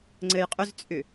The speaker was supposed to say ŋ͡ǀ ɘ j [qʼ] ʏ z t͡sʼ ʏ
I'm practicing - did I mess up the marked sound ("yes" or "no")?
no